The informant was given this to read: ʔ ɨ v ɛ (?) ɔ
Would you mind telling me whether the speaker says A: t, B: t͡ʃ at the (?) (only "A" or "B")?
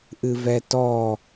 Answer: A